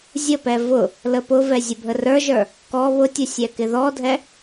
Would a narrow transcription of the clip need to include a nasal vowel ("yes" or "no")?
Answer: no